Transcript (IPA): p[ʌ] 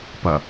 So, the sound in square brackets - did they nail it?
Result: yes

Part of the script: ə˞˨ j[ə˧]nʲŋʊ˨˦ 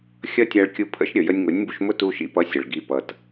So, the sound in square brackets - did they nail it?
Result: yes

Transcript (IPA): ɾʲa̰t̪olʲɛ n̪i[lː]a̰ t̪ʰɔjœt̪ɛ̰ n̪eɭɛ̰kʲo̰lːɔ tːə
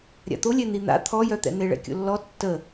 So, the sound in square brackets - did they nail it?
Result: no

